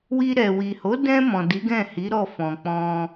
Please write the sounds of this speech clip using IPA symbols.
w i˧ ɾ ɛ˨ w i˨ h o˨˦ d ɛ̃˧ m ɔ̃˨ d i˨˦ ɡ ɛ̃˦˨ h i˨˦ ɾ ɔ˦˨ f ɔ̃˨ k͡p ɔ̃˧

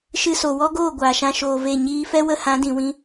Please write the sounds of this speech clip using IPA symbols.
ʃ ɨ˧ s o˨ w ɔ˦ ɡ oː˦˨ ɡʷ aː˨ ʃ ã˧ ʃ oː˨ v e˦˨ ɲ iː˧ f ɛ˦ w ə˧ h ã˨˦ d ĩ˨ w ĩ˧

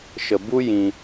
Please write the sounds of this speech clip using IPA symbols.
ʃ ə˧ b u˦ j ĩ˧

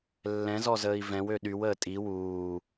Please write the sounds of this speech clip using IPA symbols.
lː ɛ̃ z ɔ z əː i̯ v ɛ̃ w ø ɗ y w əː tʼ i w uː

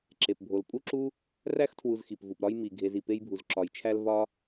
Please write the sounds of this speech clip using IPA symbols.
ǁ e˩ p bʱ o˩ l pʼ u˥ ǁ u˥ | r æ˥ x tʰ w u˨ z x i˩ p v u˩ p ɾ ɒ˦ j m i˩ ɡʱ e˨ z i˩ p e˦ j bʱ u˩ z ǁ ɒ˩ j t͡ʃʰ æ˦ l v ɒ˥

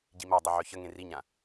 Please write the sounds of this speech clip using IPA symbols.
ɟ i m a dˤ ɨ ʕ œ ç ə ŋ ẽ r i ɲ ã

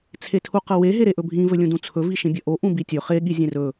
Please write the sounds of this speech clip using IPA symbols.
t͡sʰ e tʰ u q ɐ w e ɦ e ɾ e ʔ ɵ bʱ ĩ v ɵ lʲ ũ d ũ t͡sʰ ɵ v i ʃ ĩ bʲ ɐ ʔ o ʔ ũ b i tʲ ɵ χ e ɠ i zʲ ẽ r ɵ

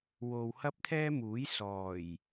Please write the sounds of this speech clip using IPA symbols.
w o˨ w h ɐ˥ p̚ t̪ʰ ɛː˥ m uː˨˥ j s ɔː˨˩ j

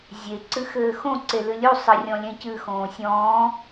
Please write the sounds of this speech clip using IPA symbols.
zʲ e ǀ ɨ x ɘː x õ ǀ e l ɨ lʲ u sˤ ɨ rʲ ɔ̃ lʲ ɛ̃ c ɨ x õː sʲ ɔ̃ː

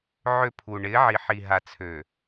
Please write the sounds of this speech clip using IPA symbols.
ʕ ø˦˨ pʰ u˨ ɳ ɪː˨˦ ʕ i˨ ħ i˨ ɦ a˨ t͡sʰ ø˨

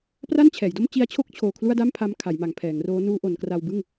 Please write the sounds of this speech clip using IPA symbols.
p r a˥˩ n t͡ɕʰ ɛː˩˦ j d o˥˩ m t͡ɕ i˦˥ a̯ t͡ɕʰ o˥˩ k̚ t͡ɕʰ oː˧ kʰ l u˥˩ a̯ d a˥˩ m pʰ a˦˥ m kʰ a˩˦ j m a˩˦ ŋ pʰ ɛː˩˦ ŋ r oː˦˥ n uː˦˥ ʔ o˩˦ n k r a˧ w b ɯ˥˩ ŋ

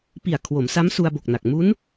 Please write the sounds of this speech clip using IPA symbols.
p i˨˩ a̯ kʰ w o˩˦ m s a˦˥ m s u˧ a̯ b o˨˩ k̚ n a˨˩ k̚ m u˦˥ n

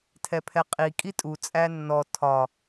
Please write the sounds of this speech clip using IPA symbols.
tʰ ɛ pʰ ɛ qʼ i kʼ i tʼ u t͡sʼ æ nː ɔ tʰ ɒ

